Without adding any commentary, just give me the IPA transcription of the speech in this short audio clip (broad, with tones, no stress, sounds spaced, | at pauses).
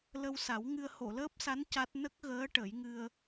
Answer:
l ə˧ w s a˨˩˦ w ŋ ɨ˧ ə̯ h o˨˩˨ l əː˦˥ p̚ s a˧˥ n c a˦˥ t̚ n ə˦˥ k̚ ɣ əː˧˥ ʈ ə˨˩˦ j ŋ ɨ˧ ə̯